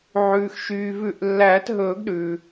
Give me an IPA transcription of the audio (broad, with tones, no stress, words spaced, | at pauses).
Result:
ʕʉː˩xʃyː˩vʉ˨˩˦ʔlːæː˨˩˦t ɦɵː˨˩˦ɡɗʉː˩